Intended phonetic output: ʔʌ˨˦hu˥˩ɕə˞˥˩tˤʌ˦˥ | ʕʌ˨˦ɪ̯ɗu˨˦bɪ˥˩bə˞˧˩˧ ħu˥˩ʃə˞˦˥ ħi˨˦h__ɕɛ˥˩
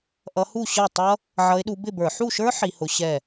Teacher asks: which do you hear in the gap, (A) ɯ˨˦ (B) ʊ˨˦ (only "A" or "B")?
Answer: B